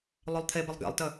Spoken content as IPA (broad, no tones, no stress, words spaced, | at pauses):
lˠølˠt̪ʰebəlˠ ɡɛ̰lˠtə